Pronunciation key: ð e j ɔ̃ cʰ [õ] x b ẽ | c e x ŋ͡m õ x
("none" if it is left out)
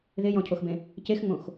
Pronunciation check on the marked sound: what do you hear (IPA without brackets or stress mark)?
o